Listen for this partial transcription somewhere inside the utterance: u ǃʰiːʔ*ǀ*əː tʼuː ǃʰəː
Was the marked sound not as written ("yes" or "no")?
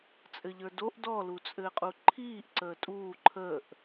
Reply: no